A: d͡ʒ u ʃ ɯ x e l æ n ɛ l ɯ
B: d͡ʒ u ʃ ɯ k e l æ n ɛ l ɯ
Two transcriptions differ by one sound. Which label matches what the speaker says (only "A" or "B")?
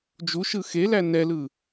A